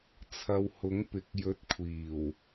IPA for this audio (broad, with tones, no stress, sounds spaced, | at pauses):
t͡sʰ ɐ˧ w h ʊ˨˥ ŋ p ɪ˨˥ k̚ j ɵ˨˥ t̚ kʷʰ iː˨˩ w